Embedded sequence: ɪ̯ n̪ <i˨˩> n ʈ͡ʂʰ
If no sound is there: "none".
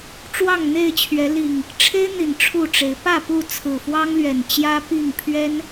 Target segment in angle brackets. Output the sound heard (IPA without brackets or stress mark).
i˨˩